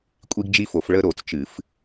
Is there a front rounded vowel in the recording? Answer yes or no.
no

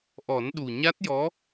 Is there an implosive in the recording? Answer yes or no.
yes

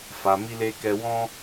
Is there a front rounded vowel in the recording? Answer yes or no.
no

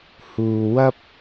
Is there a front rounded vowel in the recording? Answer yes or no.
no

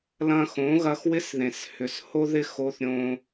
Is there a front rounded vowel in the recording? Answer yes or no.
yes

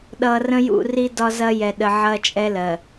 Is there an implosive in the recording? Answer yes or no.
yes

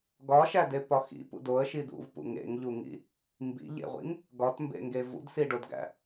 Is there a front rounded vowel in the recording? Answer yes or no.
no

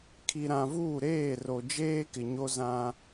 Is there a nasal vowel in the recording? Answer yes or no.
yes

